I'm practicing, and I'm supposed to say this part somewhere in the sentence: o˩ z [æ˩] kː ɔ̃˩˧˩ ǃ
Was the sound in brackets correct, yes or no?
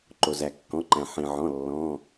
yes